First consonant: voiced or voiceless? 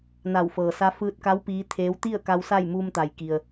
voiced